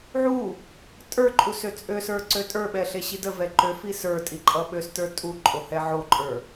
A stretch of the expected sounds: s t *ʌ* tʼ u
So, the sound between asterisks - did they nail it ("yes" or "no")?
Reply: no